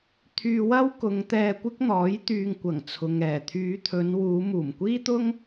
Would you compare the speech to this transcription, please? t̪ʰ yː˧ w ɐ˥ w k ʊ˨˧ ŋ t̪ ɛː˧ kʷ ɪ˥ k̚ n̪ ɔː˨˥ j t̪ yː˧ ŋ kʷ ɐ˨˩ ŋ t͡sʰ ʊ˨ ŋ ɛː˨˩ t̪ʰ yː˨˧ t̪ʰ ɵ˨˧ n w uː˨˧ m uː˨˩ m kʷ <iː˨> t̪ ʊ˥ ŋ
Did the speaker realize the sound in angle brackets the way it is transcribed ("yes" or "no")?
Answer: no